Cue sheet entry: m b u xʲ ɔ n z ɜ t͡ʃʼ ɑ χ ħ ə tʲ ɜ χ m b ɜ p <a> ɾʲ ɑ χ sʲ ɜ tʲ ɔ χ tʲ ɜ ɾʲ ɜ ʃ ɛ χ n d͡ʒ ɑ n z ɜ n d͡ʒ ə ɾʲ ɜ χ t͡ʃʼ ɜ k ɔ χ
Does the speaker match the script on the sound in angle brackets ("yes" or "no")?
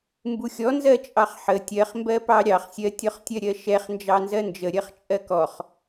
no